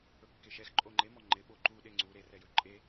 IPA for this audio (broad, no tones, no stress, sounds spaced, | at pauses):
ɵ kː e ʃ ɛ x ǃʼ o ŋ͡ǃ e m ɔ ŋ͡ǃ ɪ ɓ o ǃ u ɗ e ŋ͡ǀ u ɾ e r ɛ j ɵ ǃʼ e